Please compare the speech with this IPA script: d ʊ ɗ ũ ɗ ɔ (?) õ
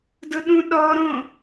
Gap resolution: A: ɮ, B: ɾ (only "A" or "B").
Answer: B